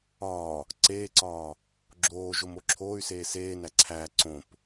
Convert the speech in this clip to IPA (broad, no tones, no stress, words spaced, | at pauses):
ɒː | ǀeːǀɒː | ɡ͡ǁoːʒom oǁʰoːy̯seː seː næǀʰæː ǀõp